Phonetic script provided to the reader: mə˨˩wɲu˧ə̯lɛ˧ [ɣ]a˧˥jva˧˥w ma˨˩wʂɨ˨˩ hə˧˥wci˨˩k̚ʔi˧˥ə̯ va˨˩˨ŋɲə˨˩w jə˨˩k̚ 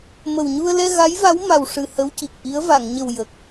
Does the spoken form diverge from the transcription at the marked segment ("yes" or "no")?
no